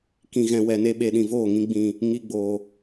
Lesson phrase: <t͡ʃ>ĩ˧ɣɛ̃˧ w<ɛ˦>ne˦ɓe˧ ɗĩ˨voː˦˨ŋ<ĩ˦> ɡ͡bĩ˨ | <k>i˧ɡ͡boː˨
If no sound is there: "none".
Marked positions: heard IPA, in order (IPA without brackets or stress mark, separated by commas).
k, ɛ˧, ĩ˧, ŋ